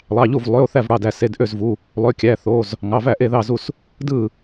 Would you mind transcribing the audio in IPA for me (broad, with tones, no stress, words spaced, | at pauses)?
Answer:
lˠɑ˩˧˩ʎu˥˩v lˠø˩˧˩o̯ θæ˥˩vɽɑ˩˧˩dæ˥˩ se˩˧˩dʔø˥˩zvu˩˧˩ | lˠø˩˧˩kʲæ˩˧˩ θo˩˧˩z | ŋɑ˩˧˩væ˥˩ ʔe˥˩ðɑ˥˩zu˥˩s | dɯ˥˩